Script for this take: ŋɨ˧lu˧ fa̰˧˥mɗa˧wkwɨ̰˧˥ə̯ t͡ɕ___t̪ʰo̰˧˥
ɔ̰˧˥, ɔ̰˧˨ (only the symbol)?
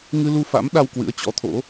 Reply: ɔ̰˧˥